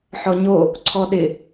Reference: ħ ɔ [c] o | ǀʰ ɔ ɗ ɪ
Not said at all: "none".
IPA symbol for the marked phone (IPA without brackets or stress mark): ɲ